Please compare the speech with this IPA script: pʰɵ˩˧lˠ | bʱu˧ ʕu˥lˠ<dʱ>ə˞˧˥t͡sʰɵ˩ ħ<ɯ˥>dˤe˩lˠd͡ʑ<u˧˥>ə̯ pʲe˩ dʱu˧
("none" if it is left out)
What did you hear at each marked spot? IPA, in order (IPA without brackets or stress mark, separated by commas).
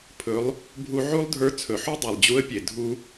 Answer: dʱ, u˥, u˧˥